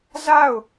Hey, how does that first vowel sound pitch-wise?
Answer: falling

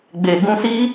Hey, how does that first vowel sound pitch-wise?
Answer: low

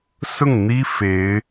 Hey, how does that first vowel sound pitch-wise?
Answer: falling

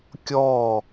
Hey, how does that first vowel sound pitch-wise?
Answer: falling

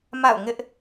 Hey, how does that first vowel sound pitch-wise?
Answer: falling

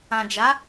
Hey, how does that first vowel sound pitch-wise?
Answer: low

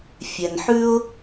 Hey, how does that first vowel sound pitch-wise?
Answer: low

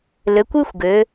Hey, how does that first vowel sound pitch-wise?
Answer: rising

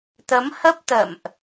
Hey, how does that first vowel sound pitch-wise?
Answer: rising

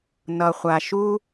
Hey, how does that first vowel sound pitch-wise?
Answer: low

